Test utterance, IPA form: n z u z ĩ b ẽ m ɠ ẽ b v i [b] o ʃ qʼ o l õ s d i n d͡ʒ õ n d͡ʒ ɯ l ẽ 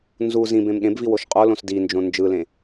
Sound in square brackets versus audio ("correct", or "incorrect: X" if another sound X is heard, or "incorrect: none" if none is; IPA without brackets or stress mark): incorrect: w